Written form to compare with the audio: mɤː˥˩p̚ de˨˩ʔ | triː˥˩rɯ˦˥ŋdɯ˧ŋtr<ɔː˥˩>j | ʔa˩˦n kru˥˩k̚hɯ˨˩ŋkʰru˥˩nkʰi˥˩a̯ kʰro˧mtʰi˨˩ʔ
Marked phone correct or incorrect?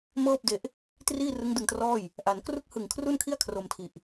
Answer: correct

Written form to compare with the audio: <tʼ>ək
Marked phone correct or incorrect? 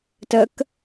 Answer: incorrect: t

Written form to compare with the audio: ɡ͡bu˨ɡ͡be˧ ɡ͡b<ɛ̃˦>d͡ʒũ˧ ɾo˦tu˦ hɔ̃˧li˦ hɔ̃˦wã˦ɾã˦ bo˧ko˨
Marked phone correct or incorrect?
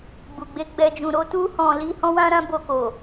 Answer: incorrect: ɛ˦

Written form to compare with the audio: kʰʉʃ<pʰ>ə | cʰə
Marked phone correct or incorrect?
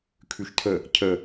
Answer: incorrect: tʰ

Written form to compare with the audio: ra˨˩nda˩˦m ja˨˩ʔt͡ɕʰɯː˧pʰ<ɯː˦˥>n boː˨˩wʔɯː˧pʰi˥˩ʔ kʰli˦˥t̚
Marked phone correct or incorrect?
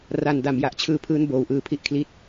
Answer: correct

